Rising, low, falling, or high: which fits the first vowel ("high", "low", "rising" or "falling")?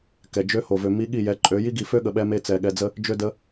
low